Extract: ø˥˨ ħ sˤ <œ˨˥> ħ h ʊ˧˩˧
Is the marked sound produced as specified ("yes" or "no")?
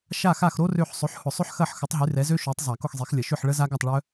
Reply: no